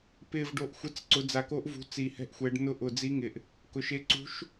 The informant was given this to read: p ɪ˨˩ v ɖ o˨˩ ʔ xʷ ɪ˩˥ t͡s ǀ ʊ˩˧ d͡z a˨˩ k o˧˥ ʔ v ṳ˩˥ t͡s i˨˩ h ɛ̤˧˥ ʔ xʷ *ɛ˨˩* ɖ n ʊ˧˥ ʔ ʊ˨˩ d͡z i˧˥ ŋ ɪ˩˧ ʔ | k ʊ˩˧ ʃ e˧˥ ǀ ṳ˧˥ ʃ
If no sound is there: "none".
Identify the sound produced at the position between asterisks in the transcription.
ɛ˩˧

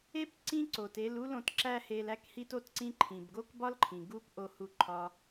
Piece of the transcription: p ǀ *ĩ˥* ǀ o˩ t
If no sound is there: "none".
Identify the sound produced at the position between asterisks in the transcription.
ĩ˥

